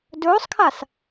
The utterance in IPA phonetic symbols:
dɵːsˤkʰas

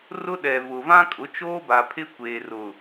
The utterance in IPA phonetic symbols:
rʊ˦ɗɛ˨vʊ˨ vã˦kʼʊ˨˦ t͡ʃoː˦ba˨pʰɪ˦ kʷeː˨rʊ˨

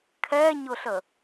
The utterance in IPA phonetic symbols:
kʰɛɲʊɬə

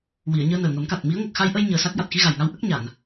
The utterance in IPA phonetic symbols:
wi˨˩˨ə̯ɲəː˧nəː˨˩ ŋə˨˩˦mka˨˩t̚mi˧˥ə̯ ŋə˨˩k̚xa˧jʔə˧j ɲəː˧sa˦˥k̚ ja˨˩t̚xi˧ɣa˨˩jŋa˧w ʔə˦˥k̚ ɲa˨˩˨n

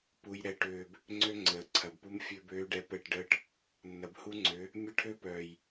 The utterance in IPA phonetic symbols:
pu˨jɾɛ˨ʈøː˨b | ŋ͡ǀø˦ŋ͡ǀəː˨ǀʰɐ˨bpu˦m fʲø˦bøː˦ɖɛ˦ pɛ˦˨ʈɖəː˦ʈ | nːɐ˨bhu˦ŋ͡ǀø˨˦ | mʲə˦˨ʈʰø˦pœː˨j

